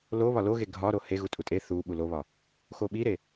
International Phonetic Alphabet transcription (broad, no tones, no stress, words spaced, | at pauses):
lo βɒloɣe ɡʱɒɾo he ɣutʼutʼe θuɓu loβɒ | xoɓiɾe